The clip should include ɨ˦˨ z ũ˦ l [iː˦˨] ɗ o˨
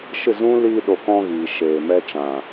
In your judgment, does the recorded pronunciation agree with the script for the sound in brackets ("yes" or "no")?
no